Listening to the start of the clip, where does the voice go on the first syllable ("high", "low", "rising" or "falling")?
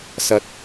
low